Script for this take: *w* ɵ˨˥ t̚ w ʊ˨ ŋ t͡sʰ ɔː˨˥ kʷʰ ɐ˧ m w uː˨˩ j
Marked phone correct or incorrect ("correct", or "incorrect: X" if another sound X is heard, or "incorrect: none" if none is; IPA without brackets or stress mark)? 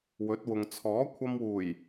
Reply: correct